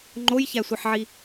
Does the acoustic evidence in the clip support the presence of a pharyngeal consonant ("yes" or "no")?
yes